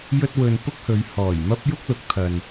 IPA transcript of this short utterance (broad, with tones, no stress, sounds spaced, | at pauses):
j ɵ˥ t̚ w ɵ˧ n p ʊ˥ k̚ h ɵ˨˧ ɥ h ɔː˨˩ j m ɐ˥ p̚ j ʊ˥ k̚ l ʊ˨˥ k̚ t̪ʰ ɐ˨ n